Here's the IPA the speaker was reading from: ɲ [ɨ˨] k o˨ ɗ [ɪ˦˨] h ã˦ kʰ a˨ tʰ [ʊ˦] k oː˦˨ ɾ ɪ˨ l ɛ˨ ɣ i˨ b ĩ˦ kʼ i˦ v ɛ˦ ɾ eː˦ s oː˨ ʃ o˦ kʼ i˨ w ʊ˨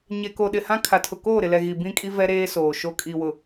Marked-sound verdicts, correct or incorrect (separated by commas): incorrect, incorrect, incorrect